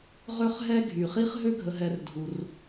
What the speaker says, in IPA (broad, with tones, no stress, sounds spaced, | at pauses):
ʁ ø˥ χ ɦ ɛ˥ ɡʱ y˩ χ i˥ χ ɦ ø˥ ɡʱ ə˨ ɦ ɛ˨ r dʱ u˩ r